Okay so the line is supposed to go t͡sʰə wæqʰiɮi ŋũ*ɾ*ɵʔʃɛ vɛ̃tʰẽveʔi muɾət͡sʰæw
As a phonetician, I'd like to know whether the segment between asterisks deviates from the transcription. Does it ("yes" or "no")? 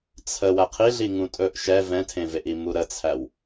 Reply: yes